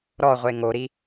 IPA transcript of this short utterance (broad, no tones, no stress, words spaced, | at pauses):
ɾɔʁʷe ŋoɾi